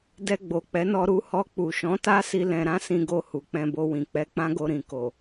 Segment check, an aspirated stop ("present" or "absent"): absent